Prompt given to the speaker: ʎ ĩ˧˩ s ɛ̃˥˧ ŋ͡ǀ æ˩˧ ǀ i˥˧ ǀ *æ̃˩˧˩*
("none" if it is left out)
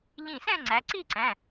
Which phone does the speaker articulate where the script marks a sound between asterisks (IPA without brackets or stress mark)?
æ̃˩˧˩